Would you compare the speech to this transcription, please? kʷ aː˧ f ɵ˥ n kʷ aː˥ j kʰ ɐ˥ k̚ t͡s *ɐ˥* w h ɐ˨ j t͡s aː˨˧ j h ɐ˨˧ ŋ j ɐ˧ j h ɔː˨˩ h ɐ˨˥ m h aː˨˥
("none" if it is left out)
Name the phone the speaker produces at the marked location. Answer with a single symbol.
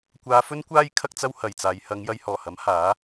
ɐ˥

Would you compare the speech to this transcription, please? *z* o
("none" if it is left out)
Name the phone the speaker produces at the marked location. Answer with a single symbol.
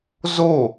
z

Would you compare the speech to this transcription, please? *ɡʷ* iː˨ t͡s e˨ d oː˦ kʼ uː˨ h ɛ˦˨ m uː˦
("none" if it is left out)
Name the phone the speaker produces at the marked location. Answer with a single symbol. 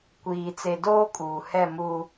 kʷ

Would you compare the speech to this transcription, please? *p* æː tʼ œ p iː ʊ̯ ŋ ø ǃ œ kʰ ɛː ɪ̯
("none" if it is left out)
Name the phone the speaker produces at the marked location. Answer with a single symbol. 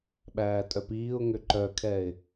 ɓ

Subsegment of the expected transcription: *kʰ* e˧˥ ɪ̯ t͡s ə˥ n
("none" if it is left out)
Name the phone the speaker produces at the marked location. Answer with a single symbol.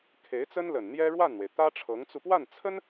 kʰ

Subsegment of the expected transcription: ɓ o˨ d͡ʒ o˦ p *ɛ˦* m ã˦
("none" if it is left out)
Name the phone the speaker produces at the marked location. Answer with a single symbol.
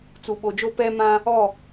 ɛ˦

